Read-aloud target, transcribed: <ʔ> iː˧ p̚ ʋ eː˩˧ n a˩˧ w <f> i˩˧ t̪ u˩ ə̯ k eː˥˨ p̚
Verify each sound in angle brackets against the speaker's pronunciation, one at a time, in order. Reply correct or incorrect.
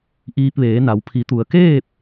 correct, incorrect: pʰ

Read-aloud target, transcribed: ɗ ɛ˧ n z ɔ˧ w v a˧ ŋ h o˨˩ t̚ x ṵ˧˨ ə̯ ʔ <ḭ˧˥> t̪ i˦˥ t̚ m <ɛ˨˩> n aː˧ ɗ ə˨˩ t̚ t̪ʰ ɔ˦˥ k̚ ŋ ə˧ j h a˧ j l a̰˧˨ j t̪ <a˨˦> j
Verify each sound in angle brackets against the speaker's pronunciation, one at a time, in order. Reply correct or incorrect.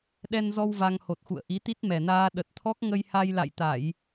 incorrect: i˨˦, correct, incorrect: a˧˩˨

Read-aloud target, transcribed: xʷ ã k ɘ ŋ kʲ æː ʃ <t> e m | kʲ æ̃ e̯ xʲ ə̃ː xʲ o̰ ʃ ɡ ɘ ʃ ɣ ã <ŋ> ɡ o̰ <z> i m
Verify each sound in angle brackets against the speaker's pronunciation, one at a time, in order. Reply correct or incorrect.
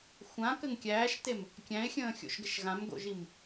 correct, incorrect: m, incorrect: ʒ

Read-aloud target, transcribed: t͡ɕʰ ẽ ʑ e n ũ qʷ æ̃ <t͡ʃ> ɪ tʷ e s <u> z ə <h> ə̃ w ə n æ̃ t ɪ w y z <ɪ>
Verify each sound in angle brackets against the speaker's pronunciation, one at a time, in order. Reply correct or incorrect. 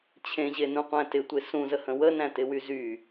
incorrect: t, incorrect: ũ, correct, incorrect: y

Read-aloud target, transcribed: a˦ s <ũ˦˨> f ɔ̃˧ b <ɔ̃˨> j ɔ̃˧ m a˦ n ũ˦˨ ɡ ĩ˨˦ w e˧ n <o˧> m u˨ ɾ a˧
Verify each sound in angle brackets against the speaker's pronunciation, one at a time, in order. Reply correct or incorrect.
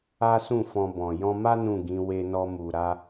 correct, correct, incorrect: ɔ˧

